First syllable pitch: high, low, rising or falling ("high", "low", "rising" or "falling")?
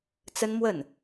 high